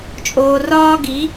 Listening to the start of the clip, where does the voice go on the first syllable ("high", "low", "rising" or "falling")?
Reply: low